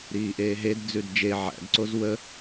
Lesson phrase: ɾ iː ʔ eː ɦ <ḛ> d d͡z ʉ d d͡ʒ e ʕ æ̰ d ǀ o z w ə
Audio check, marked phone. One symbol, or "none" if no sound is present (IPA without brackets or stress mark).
e